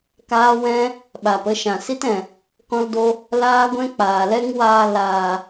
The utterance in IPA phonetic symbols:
k aː˦ w ɛ̃˦ | ɓ a˨ p ə˦ ʃ ã˨ s i˦ t ɛ̃˨ | k ɔ̃˦ l d o˦ | l aː˦ ɡʷ ɛ̃˦ k͡p aː˨ l ɛ˦ ŋ w aː˧ l aː˨

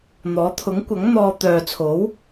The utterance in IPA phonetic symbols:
n̪ ɔː˨˥ t̪ʰ ʊ˨˥ ŋ kʷ ɐ˨˥ ŋ n̪ ɔː˧ t̪ œː˨ t͡sʰ o˨˥ w

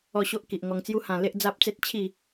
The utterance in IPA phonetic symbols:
ɔ˥˧ ɕ o˦ ʔ k i˨ ʔ ŋ ɔ˧ ŋ t͡s j u˦ h ã˧ l e˦ ʔ d͡z a˦ p̚ t͡s e˦ t̚ t͡ɕʰ i˥˧

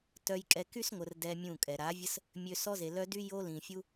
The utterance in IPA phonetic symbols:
t œ˧ j kʼ ɛ˧ k y˦ s ŋʷ ə˨ r d ɛ˦ mʲ ũ˦˨ kʼ ɛ˨ ɾ a˨˦ vʲ ə˦ s | mʲ ø˧ s ɔ˦ z e˨ l œ˦ d y˦ j o˦ l ĩ˨ fʲ u˦

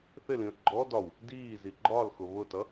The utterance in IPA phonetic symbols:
θ ɪ l ĩ ə̯ ɡ͡ǃ ɔ d ɒ w | d iː z i ɡ͡ǃ ɒ l x ʊ β ʊ t ʌ

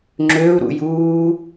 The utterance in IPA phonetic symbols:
ŋ͡ǁ ø u̯ ɾ ṵ j uː

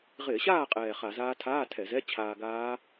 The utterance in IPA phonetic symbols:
ʁ ɪː˧˩˧ ɕ aː˥˨ qʼ ɛː˨˩ χ a˧˩˧ z aː˦˥ tʰ aː˧˥˧ tʰ ɛ˧˩˧ z ɛ˧˥˧ t͡ɕʰ aː˧ ɡ aː˦˥

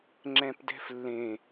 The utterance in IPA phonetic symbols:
ŋ͡ǁ ɛ̃ p d ɛ̤ f lː ẽ

